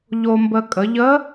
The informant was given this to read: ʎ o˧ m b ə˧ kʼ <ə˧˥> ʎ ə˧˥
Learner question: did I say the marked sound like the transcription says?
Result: no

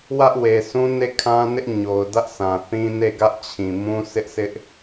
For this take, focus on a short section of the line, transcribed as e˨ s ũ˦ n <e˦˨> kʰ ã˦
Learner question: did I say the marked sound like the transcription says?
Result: yes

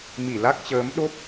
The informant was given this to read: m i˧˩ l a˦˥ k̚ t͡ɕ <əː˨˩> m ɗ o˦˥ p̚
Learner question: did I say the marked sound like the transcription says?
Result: no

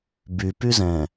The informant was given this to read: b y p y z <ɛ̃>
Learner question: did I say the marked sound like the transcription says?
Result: yes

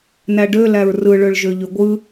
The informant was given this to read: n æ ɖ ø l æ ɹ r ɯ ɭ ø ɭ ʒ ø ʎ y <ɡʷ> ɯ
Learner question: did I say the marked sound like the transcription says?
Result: yes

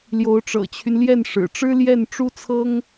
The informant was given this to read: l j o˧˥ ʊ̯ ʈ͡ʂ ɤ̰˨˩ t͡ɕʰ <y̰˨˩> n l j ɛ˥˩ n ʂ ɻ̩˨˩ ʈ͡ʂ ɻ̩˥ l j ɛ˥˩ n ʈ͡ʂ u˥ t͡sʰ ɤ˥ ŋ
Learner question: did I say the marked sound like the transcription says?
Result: no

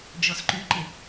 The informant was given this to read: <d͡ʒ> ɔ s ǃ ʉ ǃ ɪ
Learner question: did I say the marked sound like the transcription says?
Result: yes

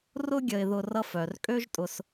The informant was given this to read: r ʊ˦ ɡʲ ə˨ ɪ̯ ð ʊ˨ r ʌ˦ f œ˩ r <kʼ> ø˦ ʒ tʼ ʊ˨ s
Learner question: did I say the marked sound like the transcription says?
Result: yes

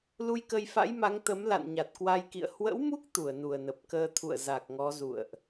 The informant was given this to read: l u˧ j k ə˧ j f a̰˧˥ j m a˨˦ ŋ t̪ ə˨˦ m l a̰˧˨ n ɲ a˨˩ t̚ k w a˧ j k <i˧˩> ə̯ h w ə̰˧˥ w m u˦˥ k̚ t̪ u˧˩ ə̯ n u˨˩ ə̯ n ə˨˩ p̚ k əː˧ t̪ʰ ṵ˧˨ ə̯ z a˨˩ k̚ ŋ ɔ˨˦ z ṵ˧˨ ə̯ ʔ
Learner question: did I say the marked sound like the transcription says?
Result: no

